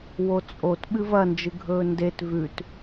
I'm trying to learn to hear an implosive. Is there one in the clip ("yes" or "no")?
yes